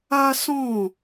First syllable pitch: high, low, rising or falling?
high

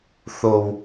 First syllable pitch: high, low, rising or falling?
high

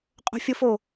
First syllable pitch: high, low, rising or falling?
high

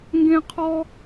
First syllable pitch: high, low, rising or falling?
high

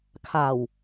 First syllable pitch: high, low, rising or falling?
low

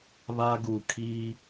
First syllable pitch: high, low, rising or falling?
high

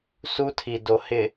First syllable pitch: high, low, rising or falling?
high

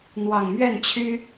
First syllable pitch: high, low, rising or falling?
low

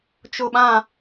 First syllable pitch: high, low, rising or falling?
low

